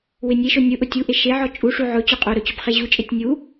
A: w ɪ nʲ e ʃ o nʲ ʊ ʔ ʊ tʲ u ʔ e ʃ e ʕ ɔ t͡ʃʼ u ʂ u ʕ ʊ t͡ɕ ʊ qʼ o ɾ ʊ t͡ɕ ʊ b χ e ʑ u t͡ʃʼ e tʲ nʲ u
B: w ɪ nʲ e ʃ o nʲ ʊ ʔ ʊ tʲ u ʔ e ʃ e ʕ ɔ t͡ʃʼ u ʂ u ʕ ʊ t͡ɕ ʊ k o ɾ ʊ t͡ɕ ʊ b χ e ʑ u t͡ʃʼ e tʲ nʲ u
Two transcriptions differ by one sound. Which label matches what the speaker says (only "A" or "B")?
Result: A